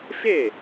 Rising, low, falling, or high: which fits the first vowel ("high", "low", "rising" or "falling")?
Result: falling